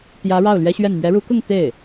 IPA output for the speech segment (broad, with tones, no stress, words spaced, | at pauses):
t̪jä˧˥ ɻɑ˥˩ʊ̯lɥɛ˥ɕɥɛ˥˩n mɥɛ˧˥ɻu˧˥kʊ˥˧ŋ t̪e˥˩ɪ̯